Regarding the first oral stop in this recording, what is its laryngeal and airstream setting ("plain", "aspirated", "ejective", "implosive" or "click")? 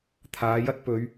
aspirated